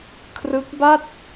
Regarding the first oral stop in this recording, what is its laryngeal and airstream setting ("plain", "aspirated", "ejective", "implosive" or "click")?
aspirated